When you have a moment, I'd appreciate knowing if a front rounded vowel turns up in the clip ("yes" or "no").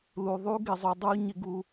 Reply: no